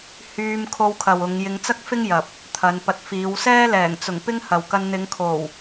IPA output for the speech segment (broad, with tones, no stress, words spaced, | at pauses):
hyː˧m kʰo˧wkʰɐ˨w ʊ˨˧ŋ jɪ˧ŋt͡sɐ˥k̚fɪ˥ŋjɐ˨p̚ | t̪ʰɐ˨˧n pɐ˨t̚ fiː˨˧wsɛː˥ lɛː˨˩ŋt͡sʊ˨˩ŋ pɪ˥ŋhɐ˨wkɐ˧n n̪ɪ˨˧ŋ kʰo˨˩w